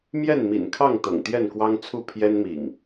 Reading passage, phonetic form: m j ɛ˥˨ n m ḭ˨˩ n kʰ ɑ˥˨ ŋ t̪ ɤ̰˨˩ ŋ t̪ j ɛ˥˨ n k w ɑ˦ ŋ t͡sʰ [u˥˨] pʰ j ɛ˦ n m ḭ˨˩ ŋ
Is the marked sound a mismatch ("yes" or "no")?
no